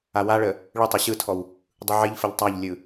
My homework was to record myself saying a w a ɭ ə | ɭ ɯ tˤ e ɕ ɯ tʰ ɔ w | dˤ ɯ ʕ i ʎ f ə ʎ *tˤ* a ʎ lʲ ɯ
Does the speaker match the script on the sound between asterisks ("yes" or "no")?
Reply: yes